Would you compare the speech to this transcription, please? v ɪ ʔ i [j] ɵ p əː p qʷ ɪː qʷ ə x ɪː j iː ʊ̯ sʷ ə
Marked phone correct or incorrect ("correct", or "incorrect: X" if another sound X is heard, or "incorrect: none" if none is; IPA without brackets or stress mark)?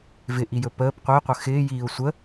correct